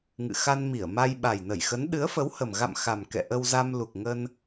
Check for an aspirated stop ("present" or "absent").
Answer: absent